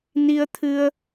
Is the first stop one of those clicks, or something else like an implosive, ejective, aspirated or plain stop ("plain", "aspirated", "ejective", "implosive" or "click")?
aspirated